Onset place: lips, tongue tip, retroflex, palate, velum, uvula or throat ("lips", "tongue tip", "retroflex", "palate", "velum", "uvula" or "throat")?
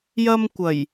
palate